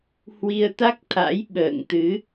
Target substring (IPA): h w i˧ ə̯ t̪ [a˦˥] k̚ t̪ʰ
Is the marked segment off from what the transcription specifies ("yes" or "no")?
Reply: no